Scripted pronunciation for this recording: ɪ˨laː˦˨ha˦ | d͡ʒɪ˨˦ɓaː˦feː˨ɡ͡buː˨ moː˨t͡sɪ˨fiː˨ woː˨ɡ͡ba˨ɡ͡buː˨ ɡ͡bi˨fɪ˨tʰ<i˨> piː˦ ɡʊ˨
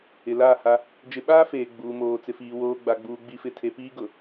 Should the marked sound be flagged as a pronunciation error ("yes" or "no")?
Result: yes